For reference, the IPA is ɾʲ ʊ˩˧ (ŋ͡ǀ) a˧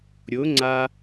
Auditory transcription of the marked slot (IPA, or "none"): ŋ͡ǀ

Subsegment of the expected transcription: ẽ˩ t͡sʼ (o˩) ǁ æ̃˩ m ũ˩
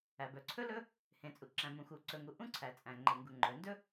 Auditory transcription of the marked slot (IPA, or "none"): u˩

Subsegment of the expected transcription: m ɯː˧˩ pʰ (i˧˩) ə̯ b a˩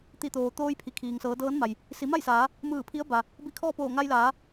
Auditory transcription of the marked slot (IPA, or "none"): i˧˥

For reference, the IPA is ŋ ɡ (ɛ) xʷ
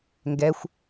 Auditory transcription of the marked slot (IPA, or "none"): ɛ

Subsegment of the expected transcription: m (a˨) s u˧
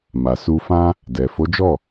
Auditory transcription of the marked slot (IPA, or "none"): a˨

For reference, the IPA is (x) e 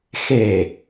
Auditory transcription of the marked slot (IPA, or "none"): x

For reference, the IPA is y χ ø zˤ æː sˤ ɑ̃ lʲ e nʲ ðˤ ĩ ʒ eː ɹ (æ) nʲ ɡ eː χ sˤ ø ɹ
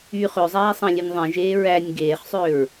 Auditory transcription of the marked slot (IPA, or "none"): æ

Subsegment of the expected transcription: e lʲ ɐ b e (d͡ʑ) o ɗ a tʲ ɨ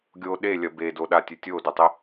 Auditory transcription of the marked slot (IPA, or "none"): d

